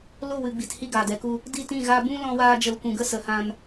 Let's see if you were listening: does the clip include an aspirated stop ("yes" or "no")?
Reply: no